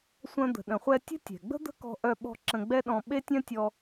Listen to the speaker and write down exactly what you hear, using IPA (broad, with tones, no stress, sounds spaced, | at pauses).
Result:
sʷ œ̃˧ d̪ ə̤˩ ɗ ə̃˩ χʷ ɛ˧ tʲ ə̤˥ tʲ ɛ̤˩ ɡ͡b ə̤˥ d̪ ə̤˥ k ɔ̤˧ ʔ œ˧ ɓ ɔ̤˧ ǁ ə̃˧ ɡ͡b ɛ˥ ɗ ɔ̃˧ ɓ e˥ tʲ œ̃˥ tʲ ɔ˧